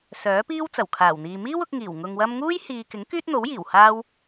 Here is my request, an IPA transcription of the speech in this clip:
sœː˨˥piː˥wt͡sɐ˨˩w kʰaː˨˩wn̪iː˨ miː˥wʊ˧k̚ŋiː˨˩w ŋʊ˧ŋwɐ˥m ŋuː˥jhiː˨kɪ˨˥ŋ kyː˥t̚n̪o˨˥wjiː˨˩w haː˥w

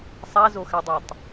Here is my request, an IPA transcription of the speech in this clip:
sˤazoxædˤætˤ

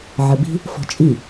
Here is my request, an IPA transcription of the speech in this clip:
ʕəbi̤ | fɔ̤t͡ʃʼi

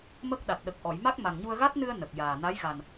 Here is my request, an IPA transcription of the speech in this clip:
mə˦˥k̚ɗa˨˩t̚ ɗə˨˩k̚ ʔɔ˨˩˨jma˦˥k̚ ma˨˩ŋɲu˧ə̯ɣa˦˥t̚nɨ˧ə̯ nə˨˩k̚jaː˨˩na˧˥j ɣa˨˩n

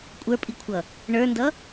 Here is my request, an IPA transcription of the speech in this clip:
kʷʼə˞pʼikʷʰʌ | ɳə˞ndʌ

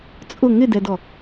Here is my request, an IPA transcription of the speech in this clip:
t͡sʼʊ ŋɪdɛdɔ

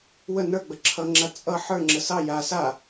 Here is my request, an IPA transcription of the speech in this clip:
wə nə˞ɡ͡bə ǁʰʌŋ͡ǁa t͡sʼʌ ħə˞ŋ͡ǁə sɑ ja sa

